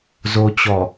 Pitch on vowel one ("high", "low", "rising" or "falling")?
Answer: low